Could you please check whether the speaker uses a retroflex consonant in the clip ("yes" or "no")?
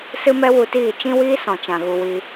no